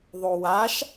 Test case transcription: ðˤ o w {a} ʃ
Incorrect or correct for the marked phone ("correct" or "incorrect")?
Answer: correct